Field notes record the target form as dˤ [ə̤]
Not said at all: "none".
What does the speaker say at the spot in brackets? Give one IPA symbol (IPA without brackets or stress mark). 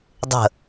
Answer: ə̤